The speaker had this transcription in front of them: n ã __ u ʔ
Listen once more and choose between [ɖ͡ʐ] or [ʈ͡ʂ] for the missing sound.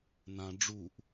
ɖ͡ʐ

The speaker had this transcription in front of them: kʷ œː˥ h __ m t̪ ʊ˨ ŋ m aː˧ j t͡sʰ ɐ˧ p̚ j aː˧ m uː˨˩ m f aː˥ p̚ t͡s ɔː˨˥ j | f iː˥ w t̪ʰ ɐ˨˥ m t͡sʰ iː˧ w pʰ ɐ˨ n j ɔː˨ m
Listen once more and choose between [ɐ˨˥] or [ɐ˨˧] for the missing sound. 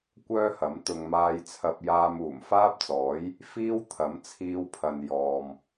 ɐ˨˥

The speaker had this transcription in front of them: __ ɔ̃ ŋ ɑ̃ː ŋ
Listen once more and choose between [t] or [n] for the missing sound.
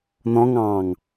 n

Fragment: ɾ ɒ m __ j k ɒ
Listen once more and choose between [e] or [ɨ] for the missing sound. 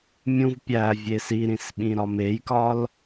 e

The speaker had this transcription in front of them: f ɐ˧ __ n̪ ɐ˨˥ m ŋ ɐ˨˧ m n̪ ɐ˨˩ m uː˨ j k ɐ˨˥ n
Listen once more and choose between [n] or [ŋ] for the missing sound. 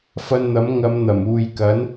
n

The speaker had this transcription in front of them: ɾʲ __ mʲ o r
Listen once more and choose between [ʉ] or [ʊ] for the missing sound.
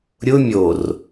ʊ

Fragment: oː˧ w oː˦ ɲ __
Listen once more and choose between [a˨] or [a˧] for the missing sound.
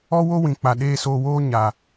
a˨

